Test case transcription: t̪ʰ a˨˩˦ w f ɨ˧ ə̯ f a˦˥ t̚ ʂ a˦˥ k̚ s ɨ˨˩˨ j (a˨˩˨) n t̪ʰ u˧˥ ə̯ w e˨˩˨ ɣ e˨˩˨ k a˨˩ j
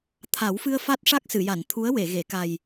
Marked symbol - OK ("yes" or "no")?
yes